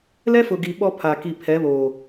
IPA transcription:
l ɛ˦ f ʊ˨ ɡ iː˨ ɓ ɔ˦ pʰ a˨ k i˨ pʰ ɛ˨˦ β oː˨

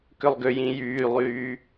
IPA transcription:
k ʏ lˠ ɡ ʏ j ĩ j yː lˠ yː

